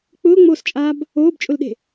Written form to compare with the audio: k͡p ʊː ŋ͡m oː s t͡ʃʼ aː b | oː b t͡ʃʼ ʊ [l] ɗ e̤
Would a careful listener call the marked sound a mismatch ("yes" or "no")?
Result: no